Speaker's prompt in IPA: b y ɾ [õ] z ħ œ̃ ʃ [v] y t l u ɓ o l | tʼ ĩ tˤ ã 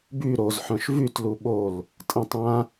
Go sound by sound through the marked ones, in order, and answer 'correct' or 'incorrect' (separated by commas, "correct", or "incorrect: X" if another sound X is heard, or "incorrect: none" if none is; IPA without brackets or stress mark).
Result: incorrect: o, correct